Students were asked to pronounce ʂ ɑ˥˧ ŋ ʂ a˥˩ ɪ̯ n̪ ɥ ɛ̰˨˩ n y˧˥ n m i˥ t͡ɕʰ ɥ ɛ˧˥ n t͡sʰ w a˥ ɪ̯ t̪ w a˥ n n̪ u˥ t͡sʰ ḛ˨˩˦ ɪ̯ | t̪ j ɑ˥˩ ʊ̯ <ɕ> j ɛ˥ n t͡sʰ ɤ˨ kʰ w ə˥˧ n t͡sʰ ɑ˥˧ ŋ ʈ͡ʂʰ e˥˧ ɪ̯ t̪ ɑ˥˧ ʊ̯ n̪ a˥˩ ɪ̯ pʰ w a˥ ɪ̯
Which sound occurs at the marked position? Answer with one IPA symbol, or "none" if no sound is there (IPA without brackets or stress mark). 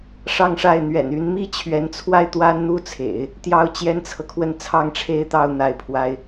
t͡ɕ